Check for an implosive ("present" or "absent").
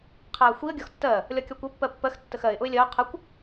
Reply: absent